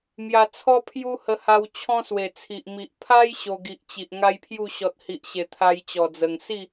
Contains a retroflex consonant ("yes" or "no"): no